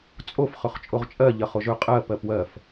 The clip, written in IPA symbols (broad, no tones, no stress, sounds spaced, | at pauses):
t͡sʼ o f χ ɵ χ t͡ʃʼ o ʁ t͡ʃʼ ɜ ʎ ɜ χ o ʒ ɵ qʼ ɜ p ɜ p w ɜ f